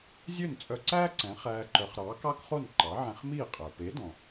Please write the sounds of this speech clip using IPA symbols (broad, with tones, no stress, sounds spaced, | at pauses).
zʲ ø˥˩ n t͡sʼ œ˧ ǀ æː˥ ǀ ɛ̃˩˥ χ æː˧ ǃ œ˩˥ χ ɾ ɑː˩˥ k ɑ˥ k χ o˥˩ n ǃ ɑ˩˥ ʕ ɛ̃˧ χ m iː˥˩ qʼ æ˩ p e˩˥ d ɔ̃˩